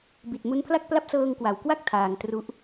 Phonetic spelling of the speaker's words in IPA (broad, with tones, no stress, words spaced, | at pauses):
bi˨˩t̚mu˦˥npʰla˥˩k̚pla˥˩p̚ sɤː˧ŋkwa˩˦wkwa˥˩k̚ tʰaː˧ŋ tru˦˥ʔ